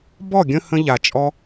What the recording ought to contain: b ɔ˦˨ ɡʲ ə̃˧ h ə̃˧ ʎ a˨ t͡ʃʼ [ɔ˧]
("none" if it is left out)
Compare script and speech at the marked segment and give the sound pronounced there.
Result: ɔ˧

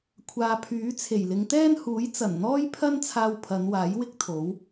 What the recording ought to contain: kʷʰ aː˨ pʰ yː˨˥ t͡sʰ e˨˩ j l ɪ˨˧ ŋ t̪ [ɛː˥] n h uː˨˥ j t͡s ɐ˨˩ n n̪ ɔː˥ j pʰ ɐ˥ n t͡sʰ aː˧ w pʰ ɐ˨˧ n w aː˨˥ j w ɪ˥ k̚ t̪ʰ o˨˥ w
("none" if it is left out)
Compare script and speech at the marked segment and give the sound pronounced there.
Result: ɛː˥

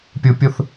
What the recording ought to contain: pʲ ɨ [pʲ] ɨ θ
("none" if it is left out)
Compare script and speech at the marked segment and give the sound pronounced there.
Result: pʲ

